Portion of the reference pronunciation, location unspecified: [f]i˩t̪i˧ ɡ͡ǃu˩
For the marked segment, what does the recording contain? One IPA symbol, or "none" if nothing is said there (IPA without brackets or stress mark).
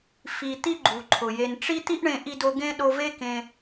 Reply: f